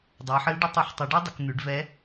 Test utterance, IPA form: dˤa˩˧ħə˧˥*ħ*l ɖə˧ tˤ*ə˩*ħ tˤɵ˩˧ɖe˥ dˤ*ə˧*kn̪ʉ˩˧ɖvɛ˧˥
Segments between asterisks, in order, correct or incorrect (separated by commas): incorrect, incorrect, incorrect